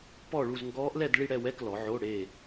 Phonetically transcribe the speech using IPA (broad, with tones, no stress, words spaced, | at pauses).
pɔ˥˧ɭu˥˧z ŋɡɔː˦˥ʔlɛ˥˧d ɭi˥˧ɽɛ˥˧wɛ˧˥˧klɔ˩˧ ʕo˧˥˧ɽe˥˧